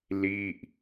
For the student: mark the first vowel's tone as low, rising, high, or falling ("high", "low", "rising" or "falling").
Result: falling